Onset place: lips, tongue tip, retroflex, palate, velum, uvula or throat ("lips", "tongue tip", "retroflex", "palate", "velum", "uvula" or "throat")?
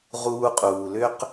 uvula